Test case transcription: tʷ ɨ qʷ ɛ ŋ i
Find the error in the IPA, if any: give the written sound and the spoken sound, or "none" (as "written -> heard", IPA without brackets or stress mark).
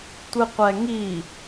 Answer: none